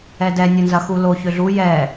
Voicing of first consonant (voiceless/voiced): voiced